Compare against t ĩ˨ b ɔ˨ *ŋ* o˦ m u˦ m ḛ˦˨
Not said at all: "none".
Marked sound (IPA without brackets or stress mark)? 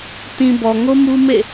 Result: ŋ